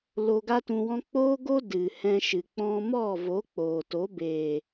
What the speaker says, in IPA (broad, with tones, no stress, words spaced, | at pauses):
lo˧ɡa˦tũ˧wɔ̃˦ k͡poː˦ɡo˦ dɨ˨ hɛ̃˧ʃɨ˨ k͡pɔ̃˧mɔ˦˨vo˨˦ k͡poː˨to˨˦ beː˨